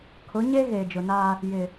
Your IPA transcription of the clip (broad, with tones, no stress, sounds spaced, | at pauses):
kʰ ʊ˨˦ ɲ e˦ ɣ eː˨ d͡ʒ ʊ˨ n aː˦ | j ɪ˨